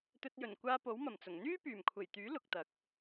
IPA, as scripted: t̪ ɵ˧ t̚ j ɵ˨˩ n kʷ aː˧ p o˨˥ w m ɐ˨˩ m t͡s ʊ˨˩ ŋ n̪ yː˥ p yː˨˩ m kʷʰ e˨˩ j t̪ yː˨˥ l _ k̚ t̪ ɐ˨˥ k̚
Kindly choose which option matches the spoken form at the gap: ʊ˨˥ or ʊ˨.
ʊ˨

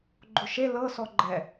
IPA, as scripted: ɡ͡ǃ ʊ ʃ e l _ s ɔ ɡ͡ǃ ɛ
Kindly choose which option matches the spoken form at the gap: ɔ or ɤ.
ɤ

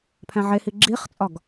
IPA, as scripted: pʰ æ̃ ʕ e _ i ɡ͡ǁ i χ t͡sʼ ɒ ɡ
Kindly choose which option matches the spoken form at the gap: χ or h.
h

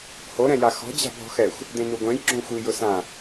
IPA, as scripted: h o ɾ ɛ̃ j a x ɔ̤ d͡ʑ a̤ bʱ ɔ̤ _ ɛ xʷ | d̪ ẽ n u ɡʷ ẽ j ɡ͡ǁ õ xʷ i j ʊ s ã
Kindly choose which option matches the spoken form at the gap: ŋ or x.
x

